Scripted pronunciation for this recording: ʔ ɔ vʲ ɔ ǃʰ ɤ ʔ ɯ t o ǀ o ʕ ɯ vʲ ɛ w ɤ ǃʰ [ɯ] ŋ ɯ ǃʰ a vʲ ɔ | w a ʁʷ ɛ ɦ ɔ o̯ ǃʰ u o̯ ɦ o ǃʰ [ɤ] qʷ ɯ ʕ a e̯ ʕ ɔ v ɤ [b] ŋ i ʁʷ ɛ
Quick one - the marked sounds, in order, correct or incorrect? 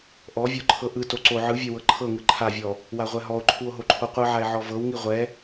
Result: incorrect, incorrect, incorrect

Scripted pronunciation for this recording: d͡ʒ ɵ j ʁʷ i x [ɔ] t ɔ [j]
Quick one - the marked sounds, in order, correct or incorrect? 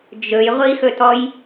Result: incorrect, correct

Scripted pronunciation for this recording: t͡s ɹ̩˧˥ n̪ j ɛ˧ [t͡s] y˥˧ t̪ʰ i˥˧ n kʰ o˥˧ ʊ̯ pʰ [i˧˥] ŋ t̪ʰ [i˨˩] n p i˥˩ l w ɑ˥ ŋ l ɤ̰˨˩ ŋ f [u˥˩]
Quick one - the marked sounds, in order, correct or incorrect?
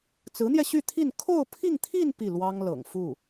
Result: incorrect, incorrect, incorrect, correct

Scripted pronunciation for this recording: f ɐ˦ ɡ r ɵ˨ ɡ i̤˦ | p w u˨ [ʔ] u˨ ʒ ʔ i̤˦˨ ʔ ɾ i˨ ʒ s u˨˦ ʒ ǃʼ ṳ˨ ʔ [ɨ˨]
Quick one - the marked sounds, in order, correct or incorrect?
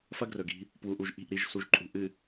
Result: correct, correct

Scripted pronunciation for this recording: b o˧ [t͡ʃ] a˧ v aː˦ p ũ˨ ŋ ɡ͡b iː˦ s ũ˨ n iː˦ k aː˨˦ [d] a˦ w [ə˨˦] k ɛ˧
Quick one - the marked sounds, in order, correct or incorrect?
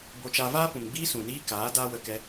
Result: correct, correct, incorrect

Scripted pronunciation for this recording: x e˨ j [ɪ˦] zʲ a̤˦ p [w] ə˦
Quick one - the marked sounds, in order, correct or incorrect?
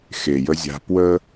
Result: incorrect, correct

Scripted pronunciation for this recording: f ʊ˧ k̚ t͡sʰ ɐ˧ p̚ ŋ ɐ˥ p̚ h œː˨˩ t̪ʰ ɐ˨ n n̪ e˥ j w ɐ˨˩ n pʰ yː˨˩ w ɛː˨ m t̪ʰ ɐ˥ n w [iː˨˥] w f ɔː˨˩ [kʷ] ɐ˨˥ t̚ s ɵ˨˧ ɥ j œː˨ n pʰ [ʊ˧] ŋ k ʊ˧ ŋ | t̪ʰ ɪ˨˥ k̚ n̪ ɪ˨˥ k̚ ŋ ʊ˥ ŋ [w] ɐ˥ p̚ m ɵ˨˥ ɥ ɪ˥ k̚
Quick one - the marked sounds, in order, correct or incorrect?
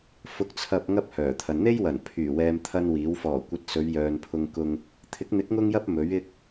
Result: correct, correct, correct, incorrect

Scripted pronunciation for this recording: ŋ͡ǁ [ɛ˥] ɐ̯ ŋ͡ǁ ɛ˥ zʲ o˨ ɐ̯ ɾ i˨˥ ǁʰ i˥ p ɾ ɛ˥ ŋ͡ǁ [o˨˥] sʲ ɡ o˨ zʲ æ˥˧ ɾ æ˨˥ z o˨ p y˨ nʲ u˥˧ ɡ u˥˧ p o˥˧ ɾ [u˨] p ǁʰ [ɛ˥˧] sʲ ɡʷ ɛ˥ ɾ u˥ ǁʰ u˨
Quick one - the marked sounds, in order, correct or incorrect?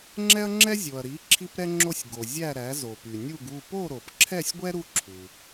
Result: correct, incorrect, incorrect, correct

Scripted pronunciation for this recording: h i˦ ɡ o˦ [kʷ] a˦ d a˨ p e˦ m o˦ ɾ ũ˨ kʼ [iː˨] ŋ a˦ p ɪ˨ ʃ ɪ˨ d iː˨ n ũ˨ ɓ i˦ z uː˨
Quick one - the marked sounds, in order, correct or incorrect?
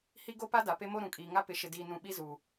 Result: incorrect, correct

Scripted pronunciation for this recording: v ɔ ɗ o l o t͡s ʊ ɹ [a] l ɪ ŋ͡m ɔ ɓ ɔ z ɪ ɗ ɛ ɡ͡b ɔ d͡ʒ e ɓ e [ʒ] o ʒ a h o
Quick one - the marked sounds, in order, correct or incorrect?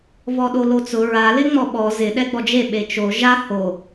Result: correct, incorrect

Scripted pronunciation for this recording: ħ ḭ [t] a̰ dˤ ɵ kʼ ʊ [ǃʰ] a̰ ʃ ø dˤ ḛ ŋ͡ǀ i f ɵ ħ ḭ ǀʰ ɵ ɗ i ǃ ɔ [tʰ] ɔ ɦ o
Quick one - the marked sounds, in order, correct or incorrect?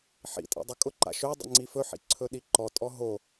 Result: incorrect, incorrect, incorrect

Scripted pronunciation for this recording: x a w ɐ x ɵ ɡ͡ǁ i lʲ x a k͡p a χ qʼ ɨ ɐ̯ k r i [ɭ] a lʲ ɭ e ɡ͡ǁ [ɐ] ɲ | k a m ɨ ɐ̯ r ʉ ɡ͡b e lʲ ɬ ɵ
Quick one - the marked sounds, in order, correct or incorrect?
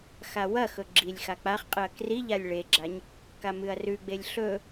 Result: incorrect, incorrect

